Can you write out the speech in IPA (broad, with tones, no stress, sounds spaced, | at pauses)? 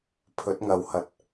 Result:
pʰ ɵ˨˥ t̚ ŋ ɐ˨ w h ɐ˨ t̚